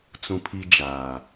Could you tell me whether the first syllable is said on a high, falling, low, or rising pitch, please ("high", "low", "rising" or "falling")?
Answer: high